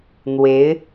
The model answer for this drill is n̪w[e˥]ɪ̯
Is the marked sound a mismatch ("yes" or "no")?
yes